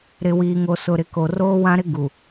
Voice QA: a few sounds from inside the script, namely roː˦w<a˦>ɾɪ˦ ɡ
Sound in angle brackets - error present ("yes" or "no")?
yes